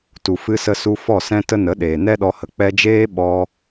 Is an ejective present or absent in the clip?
absent